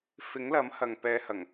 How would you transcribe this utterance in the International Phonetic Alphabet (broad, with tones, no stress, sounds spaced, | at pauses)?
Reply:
f ɪ˨˥ ŋ l ɐ˨˥ m h ɐ˨ ŋ p ɛː˨˧ h ɐ˨˩ ŋ